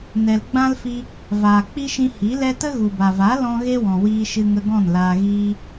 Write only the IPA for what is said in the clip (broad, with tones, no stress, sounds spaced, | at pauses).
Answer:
n ɛ˨ l ɡ͡b ã˦ l f i˧ | v aː˨ k͡p i˦ ʃ ĩ˧ h i˨˦ l ɛ˦ t ə˦ ɣ u˨ b a˨ v a˨˦ l ɔ̃˦ ɣ e˦ w ɔ̃˨ w iː˧ ʃ ɨ˧ ŋ ə˧ ɡ ɔ̃˦˨ n l aː˧ ɣ iː˦